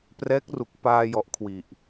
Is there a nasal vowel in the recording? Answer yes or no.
no